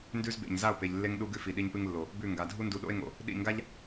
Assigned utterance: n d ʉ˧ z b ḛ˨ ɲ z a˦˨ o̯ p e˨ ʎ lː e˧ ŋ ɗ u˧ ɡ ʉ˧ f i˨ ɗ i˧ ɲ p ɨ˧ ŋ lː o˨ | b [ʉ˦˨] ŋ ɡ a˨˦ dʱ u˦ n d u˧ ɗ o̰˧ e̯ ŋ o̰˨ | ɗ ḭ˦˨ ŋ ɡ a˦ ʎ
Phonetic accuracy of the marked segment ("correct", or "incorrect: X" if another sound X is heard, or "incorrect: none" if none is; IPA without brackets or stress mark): correct